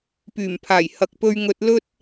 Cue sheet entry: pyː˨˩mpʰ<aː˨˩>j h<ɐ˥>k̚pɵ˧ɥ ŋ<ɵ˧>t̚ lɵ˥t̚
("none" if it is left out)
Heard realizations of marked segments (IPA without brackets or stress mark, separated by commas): aː˨˩, ɐ˨, ɵ˧